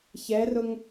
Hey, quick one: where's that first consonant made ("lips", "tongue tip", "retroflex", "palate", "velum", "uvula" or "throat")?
palate